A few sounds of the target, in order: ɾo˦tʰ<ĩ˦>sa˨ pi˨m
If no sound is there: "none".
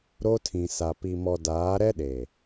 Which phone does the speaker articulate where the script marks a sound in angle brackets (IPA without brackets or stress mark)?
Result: ĩ˨